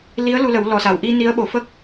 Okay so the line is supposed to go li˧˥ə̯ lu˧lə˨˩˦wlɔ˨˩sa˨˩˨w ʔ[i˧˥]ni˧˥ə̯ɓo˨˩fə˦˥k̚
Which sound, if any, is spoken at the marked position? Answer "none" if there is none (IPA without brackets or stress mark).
i˧